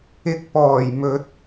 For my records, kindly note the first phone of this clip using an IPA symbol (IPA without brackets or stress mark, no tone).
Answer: ɪ